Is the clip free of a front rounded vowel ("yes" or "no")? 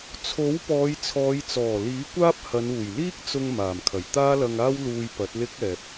yes